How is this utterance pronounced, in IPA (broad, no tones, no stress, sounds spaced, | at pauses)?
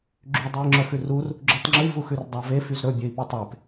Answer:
ɡ͡ǁ y dˤ ʉ i̯ ŋ͡ǁ œ x ʉ r u r | ɡ͡ǁ ʉ tˤ ŋ͡ǁ y v u x ʉ r dˤ ɑ v e f y z ɾ ɵ bʲ ø i̯ p i tˤ e p